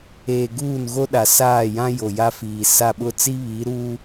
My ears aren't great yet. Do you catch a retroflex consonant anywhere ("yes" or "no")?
no